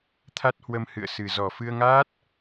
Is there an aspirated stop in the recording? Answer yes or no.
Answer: yes